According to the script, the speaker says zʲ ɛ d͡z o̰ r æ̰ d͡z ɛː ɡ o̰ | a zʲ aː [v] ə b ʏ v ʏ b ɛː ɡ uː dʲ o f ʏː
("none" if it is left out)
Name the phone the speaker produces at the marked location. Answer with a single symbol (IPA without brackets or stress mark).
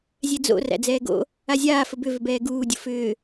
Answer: f